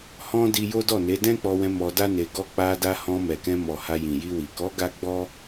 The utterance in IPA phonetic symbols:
hɔ̃˦ di˧jo˦dɔ˦˨ne˨˦ dɛ̃˦k͡pɔ˧wɛ̃˧ mɔ˧da˦ne˧ ɡɔ˧k͡pa˧da˧ hɔ̃˧mɛ˨kɛ̃˧ mɔ˨ ha˧jĩ˨ji˧wi˨ kɔ˨˦ ɡa˦ɡ͡bɔ˦

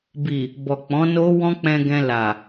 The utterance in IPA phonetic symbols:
bi˨ | bɔ˨k͡pɔ̃˨˦no˦ wɔ̃˦k͡pɛ̃˧ɡɛ̃˧ la˨

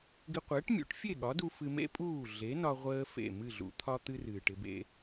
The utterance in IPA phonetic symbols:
ɡɪ˧qʷəː˩˥ʈ mʲṵ˩˥ʈfʲe˥˩ɠɒ˩˥du˧ fɨ˧mḛ˥pʼuː˥˩ ɮe˩˥nɒ˧ ʁʷəː˥fḛ˥˩ mɨ˥˩ɮṵ˩˥t̪ʰɒ˥t̪ɨ˥r ɨː˩ʈɪ˧bḛ˧

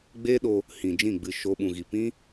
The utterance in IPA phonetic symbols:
ɡ͡be˦ɗo˧ | hĩ˨d͡ʒĩ˦˨ɡ͡bɨ˧ʃo˧ ɓũ˨ɣi˨pĩ˦

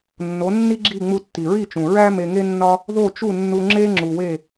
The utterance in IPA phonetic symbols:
nːo˩˥nːi˥ ɡ͡ǁi˥˩ ŋ͡mu˧tːi˩ɹi˥˩t͡ʃũ˩ ɹæ˥ me˧ŋe˥nːɒ˥ | ðo˥˩t͡ʃu˥˩nːu˧ ŋ͡ǁe˥ ŋ͡ǁu˩we˥˩

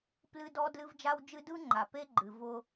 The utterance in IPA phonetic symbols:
plɨ˦dɔ˦ dlɨ˦vd͡ʒa˦wd͡ʒɨ˦ dɯ˦ŋ͡ǃa˨pe˦ ɡ͡ǃɨ˨vʊ˦

